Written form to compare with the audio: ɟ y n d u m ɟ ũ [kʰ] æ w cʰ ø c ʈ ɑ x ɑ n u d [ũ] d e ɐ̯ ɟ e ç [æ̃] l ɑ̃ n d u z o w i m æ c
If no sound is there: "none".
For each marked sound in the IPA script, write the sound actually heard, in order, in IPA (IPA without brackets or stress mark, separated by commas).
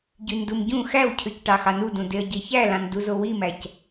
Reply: x, ũ, æ